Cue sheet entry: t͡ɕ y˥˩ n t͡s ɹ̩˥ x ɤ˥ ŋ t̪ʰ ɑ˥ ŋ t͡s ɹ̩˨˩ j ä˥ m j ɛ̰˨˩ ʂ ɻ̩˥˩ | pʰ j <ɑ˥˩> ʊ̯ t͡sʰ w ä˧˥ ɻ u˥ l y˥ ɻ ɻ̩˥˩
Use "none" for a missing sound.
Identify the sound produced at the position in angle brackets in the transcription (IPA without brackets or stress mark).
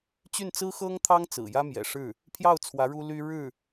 ɑ˥˩